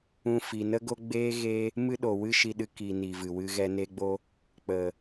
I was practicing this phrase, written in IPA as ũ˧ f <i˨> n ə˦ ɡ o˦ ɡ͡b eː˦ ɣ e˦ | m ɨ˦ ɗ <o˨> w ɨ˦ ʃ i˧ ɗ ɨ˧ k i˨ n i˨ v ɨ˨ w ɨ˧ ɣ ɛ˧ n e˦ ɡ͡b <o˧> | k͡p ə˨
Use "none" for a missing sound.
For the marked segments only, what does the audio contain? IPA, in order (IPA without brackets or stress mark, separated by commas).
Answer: i˨, o˨, o˦